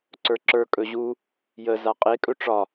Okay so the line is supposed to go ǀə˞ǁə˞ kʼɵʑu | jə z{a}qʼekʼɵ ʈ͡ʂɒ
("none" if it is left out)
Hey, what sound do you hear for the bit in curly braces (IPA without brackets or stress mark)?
a